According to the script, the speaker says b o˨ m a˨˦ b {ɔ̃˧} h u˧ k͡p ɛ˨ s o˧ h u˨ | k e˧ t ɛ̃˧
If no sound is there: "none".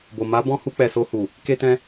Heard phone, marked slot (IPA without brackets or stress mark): ɔ̃˧